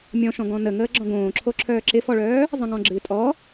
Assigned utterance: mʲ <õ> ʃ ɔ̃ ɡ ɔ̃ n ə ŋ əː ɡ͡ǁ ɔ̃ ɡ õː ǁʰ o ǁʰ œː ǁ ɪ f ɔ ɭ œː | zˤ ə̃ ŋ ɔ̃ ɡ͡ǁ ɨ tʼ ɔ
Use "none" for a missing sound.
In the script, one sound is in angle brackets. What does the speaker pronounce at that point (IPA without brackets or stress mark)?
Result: ɔ̃